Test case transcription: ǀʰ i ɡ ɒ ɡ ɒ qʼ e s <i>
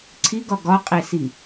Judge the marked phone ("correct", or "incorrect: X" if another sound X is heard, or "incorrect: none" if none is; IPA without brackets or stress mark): correct